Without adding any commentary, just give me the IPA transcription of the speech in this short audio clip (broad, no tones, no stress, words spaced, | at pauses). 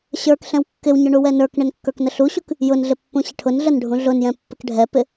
ɕə˞kɬɛ̃w kːɪwɲʊ ɳuwɛnə˞kɳɪn kːə˞knəɬuɕuk | jʊnɮɪ pːũɕɪʈʰʊnɮən ɖʱũɮʊnjɛ̃ pːɪkɖʱɛpɪ